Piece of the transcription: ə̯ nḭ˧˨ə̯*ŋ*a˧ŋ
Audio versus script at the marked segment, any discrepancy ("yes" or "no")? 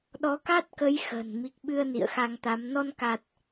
yes